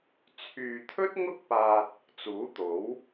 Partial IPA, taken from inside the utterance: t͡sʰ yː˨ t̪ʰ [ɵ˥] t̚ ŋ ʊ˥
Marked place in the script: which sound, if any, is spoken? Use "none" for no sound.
ɵ˥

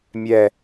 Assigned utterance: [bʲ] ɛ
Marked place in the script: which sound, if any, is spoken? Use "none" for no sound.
mʲ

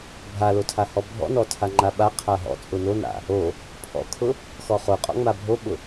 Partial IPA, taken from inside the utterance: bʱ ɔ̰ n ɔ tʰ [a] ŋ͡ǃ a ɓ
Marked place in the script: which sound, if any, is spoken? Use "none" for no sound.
a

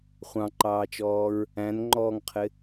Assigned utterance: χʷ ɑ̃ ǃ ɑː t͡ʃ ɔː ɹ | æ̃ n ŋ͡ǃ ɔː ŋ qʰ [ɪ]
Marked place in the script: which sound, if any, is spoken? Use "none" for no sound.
ɪ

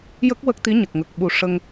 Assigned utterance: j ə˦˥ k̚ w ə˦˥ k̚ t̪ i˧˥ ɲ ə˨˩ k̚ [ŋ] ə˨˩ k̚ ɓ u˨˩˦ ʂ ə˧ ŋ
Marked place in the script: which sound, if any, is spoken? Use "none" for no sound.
ŋ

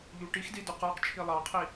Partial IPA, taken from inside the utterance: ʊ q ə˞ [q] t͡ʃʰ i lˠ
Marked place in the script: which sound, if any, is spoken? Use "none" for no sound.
q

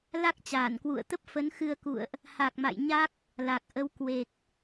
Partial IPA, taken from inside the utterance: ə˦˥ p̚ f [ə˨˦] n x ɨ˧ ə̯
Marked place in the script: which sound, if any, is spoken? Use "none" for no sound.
ə˨˦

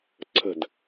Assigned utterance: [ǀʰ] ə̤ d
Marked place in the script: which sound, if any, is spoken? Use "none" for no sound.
ǀʰ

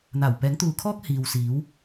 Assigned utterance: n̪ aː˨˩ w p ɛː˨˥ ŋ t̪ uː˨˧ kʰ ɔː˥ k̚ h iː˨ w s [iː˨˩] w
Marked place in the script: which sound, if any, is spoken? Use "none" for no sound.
iː˨˥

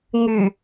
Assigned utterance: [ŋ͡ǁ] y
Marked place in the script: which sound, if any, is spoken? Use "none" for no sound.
ŋ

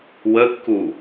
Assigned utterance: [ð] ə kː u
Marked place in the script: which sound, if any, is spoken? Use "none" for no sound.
w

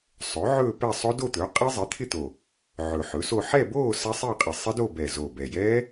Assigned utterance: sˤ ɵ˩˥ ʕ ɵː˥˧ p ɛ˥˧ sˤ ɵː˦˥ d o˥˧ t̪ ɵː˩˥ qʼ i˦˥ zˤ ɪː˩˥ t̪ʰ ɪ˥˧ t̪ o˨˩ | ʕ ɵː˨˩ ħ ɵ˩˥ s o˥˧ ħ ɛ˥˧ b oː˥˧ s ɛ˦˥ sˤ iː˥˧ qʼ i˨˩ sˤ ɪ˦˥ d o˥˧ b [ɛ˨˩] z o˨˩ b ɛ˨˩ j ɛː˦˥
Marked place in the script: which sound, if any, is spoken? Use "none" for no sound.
ɛ˨˩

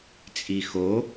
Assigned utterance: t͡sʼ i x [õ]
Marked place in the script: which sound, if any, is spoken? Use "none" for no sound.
o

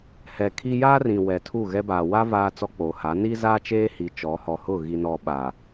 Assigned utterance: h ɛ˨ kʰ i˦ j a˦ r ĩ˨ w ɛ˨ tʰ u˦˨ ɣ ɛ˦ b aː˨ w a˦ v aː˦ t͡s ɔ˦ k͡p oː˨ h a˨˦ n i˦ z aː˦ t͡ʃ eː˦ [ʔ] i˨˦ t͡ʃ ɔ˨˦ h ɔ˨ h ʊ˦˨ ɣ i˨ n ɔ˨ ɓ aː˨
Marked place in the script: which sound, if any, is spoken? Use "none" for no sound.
h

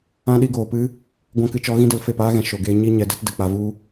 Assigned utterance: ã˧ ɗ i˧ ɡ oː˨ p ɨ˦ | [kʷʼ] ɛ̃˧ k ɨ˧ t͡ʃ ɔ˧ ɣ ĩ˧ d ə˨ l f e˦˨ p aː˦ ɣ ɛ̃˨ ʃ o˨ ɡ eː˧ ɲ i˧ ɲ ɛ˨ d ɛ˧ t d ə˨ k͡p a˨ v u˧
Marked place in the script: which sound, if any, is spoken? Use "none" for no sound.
ɡʷ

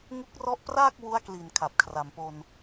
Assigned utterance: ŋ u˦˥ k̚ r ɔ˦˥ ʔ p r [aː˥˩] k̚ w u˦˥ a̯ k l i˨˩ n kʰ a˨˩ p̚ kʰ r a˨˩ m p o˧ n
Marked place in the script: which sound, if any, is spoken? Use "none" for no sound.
aː˥˩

